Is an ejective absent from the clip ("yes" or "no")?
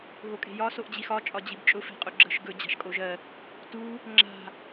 no